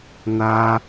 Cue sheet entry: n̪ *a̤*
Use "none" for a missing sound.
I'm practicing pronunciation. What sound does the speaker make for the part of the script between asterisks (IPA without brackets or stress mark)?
a